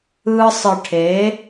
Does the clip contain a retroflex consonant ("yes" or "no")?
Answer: yes